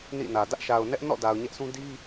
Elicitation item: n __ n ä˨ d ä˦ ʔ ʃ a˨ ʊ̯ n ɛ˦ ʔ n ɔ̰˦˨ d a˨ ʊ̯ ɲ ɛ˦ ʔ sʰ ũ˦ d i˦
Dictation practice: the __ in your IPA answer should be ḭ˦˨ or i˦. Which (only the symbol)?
ḭ˦˨